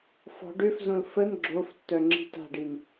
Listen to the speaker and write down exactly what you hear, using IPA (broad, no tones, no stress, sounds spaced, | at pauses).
f ɔ̤ ɖ ø f z õ l f ə n ɡ͡ǁ o f tː œ ŋ͡ǁ i̤ t a̤ ɖ i n